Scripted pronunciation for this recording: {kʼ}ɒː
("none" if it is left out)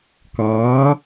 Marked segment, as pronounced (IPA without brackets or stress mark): k